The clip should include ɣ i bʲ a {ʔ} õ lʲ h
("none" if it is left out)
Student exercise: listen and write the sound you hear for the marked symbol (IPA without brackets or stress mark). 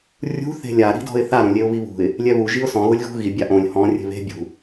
ʔ